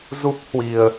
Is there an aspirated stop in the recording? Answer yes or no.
no